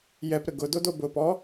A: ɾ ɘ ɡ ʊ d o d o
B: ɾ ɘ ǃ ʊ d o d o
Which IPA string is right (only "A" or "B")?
A